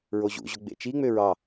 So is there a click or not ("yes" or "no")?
no